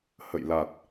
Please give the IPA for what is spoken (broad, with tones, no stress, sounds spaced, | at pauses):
h ə̰˧˨ j l a˨˩ t̚